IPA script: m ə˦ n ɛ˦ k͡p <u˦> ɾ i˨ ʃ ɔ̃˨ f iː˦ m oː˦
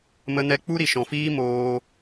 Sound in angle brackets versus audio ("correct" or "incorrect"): correct